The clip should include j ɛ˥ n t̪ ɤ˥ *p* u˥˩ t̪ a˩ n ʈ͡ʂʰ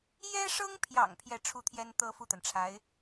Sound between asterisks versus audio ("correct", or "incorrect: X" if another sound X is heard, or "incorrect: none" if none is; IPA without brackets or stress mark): incorrect: f